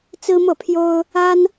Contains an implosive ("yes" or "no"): no